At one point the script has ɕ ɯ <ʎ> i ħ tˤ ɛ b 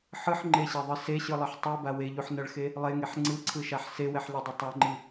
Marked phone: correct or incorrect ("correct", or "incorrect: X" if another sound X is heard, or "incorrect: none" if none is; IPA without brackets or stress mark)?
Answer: incorrect: lˠ